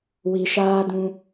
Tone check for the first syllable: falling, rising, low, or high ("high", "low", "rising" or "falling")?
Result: low